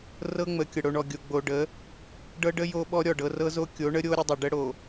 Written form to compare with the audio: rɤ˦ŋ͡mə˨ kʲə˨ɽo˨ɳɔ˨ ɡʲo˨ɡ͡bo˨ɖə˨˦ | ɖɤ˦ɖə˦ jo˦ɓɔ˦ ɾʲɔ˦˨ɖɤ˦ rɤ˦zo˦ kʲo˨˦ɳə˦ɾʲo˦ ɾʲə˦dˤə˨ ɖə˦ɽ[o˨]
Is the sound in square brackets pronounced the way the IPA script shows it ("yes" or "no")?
yes